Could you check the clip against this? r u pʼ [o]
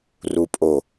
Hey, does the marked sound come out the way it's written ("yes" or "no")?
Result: yes